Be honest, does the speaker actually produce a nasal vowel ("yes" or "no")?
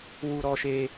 no